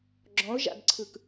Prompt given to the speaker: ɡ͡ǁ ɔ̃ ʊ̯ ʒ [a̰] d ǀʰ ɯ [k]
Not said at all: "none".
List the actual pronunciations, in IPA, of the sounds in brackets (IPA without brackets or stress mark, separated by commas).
a̰, k